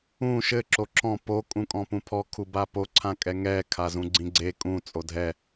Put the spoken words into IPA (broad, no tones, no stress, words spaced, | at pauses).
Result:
ũ ʃɘ ǁoǁɔ̃ po kʼũkʼɔ̃pũpʰɔ kʰubapo ǀʰãkʼɛŋɛ kʰazũɡ͡ǀĩɡ͡ǀe kʼũ t͡sʼodʱɛ